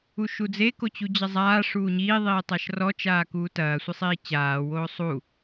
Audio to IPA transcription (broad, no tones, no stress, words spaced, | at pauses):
uʃud͡ze kot͡ɕud͡ʑɐzˤaː ʂuːɲiː ðˤiːtˤaʃrɔ t͡ʃaːkuːtɐː sʷisˤiːt͡ɕaː woːsˤu